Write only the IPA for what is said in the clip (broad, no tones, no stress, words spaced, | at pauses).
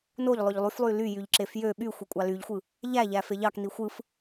noʎ lˠøʎlˠyflˠy ly jyʎǁefjø ɓy xʷekʷʼɑlyʎxʷɯ | ʎæ ʎæfeʎɑkni xʷɯf